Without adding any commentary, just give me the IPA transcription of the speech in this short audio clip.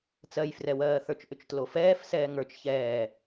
t͡s ɜ j f r ɛ w ɜː θ ə˞ t͡ʃ ʔ ʏ t͡ʃ t l o f ɛː f s ɛː ŋ ə˞ t͡ʃ ç ɛː

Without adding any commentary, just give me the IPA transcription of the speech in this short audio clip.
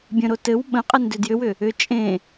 bʲ ə̃ ɾ o t ɘ w ɓ ə̃ qʼ ɘ n d ʏ d j ʏ w ʏ | ʏ t͡ʃʼ ẽ

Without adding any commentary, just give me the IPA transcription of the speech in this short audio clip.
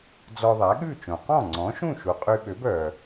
d͡z ɔ˧ ðˤ æ˩˥ ɠ ʉ˥˩ t͡ʃ õ˩ q ɔ̃˥˩ ŋ͡ǀ ɔ̃˩˥ ʃ ũ˥˩ ʃ u˩ qʼ y˧ ɓ ø˩˥ b œ˩

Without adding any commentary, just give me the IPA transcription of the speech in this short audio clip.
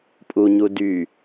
pʼ u ɲ u d y

